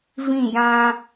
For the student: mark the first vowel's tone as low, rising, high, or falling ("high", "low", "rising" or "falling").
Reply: falling